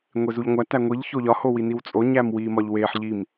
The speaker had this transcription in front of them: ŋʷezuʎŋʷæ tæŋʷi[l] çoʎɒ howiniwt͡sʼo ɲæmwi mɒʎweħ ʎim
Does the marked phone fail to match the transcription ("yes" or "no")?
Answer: yes